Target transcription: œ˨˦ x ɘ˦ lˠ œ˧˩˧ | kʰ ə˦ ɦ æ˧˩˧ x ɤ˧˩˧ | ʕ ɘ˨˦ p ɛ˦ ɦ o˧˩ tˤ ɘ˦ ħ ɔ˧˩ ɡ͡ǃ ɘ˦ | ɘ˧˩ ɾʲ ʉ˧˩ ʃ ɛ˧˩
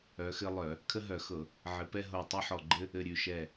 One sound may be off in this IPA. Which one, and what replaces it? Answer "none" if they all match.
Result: æ˧˩˧ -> œ˧˩˧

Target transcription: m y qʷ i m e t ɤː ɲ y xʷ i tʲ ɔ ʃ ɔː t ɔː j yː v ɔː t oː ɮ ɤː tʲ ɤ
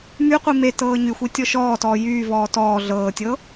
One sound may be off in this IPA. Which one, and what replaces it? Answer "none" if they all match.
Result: oː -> ɔː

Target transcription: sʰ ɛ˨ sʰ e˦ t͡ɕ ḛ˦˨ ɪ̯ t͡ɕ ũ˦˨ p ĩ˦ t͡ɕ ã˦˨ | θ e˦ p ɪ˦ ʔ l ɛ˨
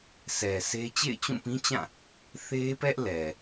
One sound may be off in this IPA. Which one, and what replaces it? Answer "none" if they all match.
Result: ɪ˦ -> ɛ˦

